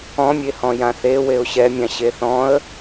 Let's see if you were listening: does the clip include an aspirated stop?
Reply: no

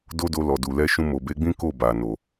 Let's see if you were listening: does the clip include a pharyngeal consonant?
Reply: no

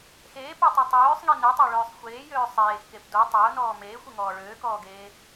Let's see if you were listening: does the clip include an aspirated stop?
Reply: no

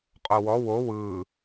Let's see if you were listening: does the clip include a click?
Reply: no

